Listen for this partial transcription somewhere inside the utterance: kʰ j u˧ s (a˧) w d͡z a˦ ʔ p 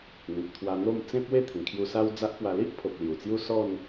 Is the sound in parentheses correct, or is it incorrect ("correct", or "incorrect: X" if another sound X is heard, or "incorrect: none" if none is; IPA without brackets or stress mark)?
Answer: incorrect: a˦